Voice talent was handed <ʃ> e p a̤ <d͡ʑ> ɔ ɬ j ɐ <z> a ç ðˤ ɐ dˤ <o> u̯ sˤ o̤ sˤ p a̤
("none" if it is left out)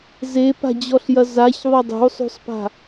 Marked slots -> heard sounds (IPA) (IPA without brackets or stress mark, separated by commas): z, d͡ʑ, z, o̤